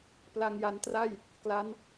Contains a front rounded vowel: no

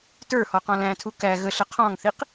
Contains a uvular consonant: yes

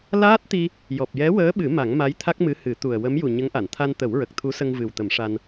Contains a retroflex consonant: yes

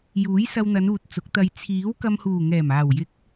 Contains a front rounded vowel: no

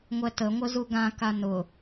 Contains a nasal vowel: yes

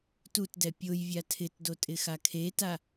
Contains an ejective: yes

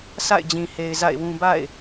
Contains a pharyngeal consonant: no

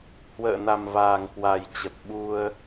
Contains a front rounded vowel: no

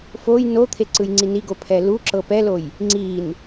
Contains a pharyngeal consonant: no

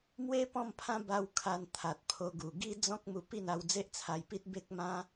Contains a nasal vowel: yes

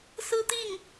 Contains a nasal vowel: no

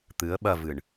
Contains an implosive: yes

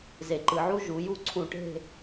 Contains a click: yes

